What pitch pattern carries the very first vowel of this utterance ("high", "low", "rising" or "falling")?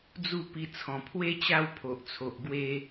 falling